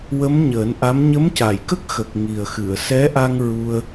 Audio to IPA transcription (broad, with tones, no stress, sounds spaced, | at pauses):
w ə˧˥ m ɲ əː˨˩˦ n ʔ a˧˥ m ɲ ə˧˥ m c a˨˩˨ j k ə˦˥ k̚ x ə˨˩ k̚ ŋ i˨˩ ə̯ x ɨ˨˩˨ ə̯ s ɛ˧˥ ʔ a˧ ŋ ɹ u˧ ə̯